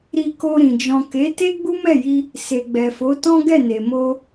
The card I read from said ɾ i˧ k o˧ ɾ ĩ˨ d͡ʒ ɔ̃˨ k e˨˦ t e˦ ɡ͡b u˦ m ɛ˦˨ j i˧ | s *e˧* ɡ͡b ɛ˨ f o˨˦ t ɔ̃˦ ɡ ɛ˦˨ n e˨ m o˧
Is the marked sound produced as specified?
no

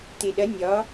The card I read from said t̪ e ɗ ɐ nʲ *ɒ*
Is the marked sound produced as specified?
yes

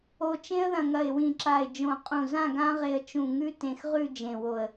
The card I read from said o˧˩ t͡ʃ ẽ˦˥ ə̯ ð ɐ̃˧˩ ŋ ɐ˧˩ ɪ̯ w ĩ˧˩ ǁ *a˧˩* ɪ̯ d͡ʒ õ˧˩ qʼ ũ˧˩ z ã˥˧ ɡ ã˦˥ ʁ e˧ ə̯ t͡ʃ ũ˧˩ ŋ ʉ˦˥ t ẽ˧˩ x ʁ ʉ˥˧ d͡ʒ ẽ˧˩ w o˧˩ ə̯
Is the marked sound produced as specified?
yes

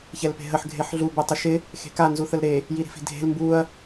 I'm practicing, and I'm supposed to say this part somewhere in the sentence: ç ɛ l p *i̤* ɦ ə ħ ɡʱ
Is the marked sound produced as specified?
no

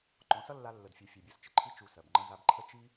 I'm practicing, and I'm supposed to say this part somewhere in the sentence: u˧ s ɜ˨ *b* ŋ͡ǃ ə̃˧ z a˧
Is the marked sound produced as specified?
yes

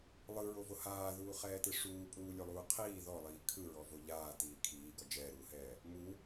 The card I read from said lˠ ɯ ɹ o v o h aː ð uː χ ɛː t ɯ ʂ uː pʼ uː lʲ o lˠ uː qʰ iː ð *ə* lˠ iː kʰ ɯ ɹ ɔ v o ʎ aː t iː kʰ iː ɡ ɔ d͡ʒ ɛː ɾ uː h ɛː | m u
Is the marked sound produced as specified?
no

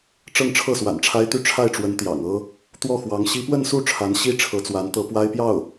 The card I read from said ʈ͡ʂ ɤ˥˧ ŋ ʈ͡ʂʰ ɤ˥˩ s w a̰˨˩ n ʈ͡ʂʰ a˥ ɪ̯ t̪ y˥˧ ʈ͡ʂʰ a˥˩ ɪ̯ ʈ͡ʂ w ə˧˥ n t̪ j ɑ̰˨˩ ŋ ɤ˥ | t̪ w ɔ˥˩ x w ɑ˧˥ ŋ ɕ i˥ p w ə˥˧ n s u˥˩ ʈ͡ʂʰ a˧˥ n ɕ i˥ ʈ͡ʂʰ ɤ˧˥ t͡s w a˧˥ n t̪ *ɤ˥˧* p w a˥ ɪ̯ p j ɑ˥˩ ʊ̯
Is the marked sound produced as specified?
no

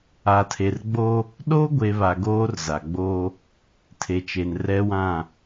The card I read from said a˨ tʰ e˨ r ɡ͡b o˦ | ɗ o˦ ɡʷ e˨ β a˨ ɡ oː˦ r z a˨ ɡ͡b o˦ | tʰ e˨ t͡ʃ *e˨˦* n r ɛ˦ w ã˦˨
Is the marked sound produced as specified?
no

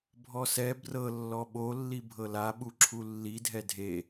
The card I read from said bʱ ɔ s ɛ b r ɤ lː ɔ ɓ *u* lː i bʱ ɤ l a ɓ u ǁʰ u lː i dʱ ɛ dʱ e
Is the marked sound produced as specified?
no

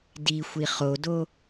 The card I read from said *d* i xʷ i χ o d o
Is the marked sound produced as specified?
yes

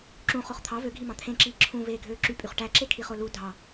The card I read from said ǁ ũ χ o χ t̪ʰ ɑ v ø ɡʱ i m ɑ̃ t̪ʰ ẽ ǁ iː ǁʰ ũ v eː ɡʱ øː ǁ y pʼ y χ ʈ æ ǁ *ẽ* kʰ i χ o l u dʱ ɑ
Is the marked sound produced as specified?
no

